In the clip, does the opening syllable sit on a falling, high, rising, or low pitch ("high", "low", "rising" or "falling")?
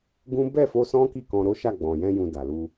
high